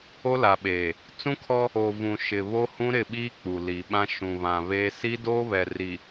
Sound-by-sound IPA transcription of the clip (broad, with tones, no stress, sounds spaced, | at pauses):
o˦ l a˨ ɓ eː˨ | t͡s ũ˦ kʰ ɔ˦ | o˨ v ũ˨ ʃ ɪ˨ β o˦ h ũ˦ ɾ ɪ˦˨ ɓ iː˦ k͡p u˨ l i˨ ɓ ã˦ ʃ ũ˨ β ã˨ β eː˦ s i˦ d oː˦ β ɛ˨ r i˨